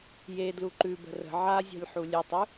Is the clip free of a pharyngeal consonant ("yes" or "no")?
no